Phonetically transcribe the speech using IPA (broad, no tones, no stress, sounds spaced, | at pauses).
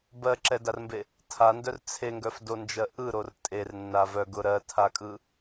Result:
b ɜ ǁ ɛ d a r m b e | tʰ a n d œ r t͡sʰ e ŋ ɡ œ f d o n d͡ʒ ɜ ʔ ɯ ɾ o r tʼ e r nː a v œ ɡ ʊ ɾ ɜ tʰ a kʼ ɯ